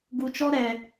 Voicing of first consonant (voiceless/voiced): voiced